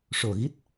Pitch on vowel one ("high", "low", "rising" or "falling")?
low